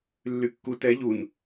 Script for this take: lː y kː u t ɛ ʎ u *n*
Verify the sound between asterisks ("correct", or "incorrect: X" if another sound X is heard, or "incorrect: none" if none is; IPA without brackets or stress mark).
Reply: correct